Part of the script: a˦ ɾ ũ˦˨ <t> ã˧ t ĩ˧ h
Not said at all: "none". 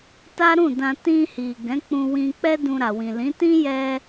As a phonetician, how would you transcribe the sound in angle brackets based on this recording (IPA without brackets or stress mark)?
d